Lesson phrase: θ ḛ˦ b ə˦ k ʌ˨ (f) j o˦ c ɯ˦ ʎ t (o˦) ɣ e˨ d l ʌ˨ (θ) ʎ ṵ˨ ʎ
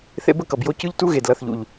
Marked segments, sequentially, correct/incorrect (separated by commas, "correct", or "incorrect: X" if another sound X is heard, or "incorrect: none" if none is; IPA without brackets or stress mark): incorrect: b, incorrect: u˦, correct